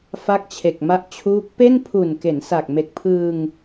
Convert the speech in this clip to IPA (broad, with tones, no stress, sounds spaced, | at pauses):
f a˦˥ k̚ t͡ɕʰ e˨˩ k̚ m a˦˥ ʔ t͡ɕʰ uː˦˥ k̚ p e˥˩ n pʰ u˨˩ n k e˩˦ n s a˨˩ k̚ m e˨˩ k̚ pʰ ɯː˧ ŋ